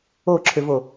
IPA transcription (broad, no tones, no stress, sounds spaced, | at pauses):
o ǁʰ ʏ v o